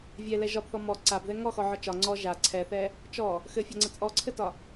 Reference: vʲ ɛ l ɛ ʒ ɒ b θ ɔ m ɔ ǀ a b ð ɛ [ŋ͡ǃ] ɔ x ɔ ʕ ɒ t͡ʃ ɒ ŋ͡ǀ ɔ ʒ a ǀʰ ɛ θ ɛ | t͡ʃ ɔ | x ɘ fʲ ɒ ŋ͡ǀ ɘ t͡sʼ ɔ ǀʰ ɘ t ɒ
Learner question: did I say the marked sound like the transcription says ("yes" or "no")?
no